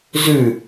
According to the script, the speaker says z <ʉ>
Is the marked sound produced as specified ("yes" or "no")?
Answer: yes